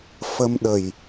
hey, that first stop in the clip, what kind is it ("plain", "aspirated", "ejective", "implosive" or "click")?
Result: implosive